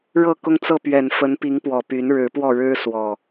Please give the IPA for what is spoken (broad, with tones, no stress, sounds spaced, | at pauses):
ɻ ɤ˥˨ k ʊ˦ ŋ t͡s ɤ˥˨ p ɥ ɛ˨˩ n f ə˨˦ n p i˨˦ ŋ p w ɔ˨˩ p y˨˦ n ɻ ɻ̩˨˦ p w ɔ˥˨ ɻ ɻ̩˦ s w ɔ˨˩